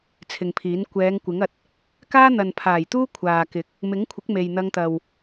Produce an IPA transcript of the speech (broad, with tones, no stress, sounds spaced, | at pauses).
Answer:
t͡sʰ ɪ˨ ŋ pʰ iː˨˥ n kʷ ɛː˨˧ ŋ kʷ ɪ˨˥ ŋ ɐ˨ t̚ | k aː˥ n̪ ɐ˨ n pʰ aː˨˩ j t̪ uː˥ kʷʰ aː˨ k ɪ˨˥ k̚ | m ɪ˨˥ ŋ kʷʰ ɪ˨˥ k̚ m e˨ j n̪ ɐ˧ ŋ t̪ ɐ˨ w